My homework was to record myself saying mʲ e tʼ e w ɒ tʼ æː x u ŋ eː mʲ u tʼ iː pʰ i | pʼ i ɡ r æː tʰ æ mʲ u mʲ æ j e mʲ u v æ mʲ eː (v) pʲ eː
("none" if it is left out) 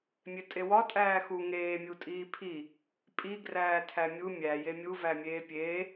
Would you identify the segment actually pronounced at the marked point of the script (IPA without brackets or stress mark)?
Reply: none